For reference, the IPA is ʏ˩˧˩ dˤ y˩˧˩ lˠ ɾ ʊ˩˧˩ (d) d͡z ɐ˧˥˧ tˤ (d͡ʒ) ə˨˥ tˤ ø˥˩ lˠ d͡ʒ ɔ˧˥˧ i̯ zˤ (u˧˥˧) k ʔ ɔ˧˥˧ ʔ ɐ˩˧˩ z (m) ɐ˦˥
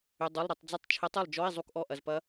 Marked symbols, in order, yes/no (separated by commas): no, no, yes, no